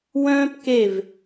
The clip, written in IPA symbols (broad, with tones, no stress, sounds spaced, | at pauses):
w œ̃ː˥ p k e˦˨ v